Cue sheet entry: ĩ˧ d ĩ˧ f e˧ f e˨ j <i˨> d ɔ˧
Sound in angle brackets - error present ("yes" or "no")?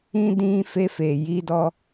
yes